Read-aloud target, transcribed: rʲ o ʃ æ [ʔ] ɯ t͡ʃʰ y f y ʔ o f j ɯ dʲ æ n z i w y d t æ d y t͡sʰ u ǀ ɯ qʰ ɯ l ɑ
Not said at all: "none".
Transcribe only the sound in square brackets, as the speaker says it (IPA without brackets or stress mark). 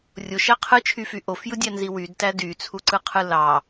qʰ